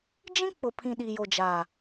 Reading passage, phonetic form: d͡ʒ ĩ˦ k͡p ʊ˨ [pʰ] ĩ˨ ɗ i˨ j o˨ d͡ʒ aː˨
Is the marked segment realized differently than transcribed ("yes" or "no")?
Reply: no